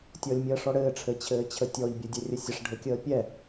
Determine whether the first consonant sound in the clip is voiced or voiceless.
voiceless